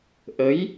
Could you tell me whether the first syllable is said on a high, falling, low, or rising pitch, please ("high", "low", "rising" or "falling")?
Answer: rising